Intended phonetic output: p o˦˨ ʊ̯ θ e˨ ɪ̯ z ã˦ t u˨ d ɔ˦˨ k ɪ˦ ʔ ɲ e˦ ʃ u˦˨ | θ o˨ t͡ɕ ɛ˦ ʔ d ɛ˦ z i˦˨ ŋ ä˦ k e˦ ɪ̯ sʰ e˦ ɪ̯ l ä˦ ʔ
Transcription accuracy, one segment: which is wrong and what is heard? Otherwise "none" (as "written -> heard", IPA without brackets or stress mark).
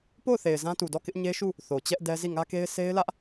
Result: none